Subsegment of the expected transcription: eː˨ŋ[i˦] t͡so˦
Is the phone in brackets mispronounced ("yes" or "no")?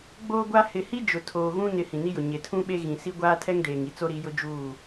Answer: yes